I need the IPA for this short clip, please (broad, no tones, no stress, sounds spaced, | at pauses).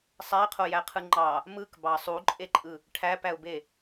sˤ æ ɪ̯ qʰ o j æ qʰ ɯ ŋ͡ǃ ɑ | m ɯ k b ɑ sˤ u ǃʼ e ǃʼ ɯ | ʈʰ æ p æ ʊ̯ b e